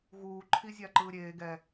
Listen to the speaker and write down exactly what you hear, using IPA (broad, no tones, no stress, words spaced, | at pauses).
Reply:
ɣuː ǃʰizʲaǃɯːɾʲeː ɡɛ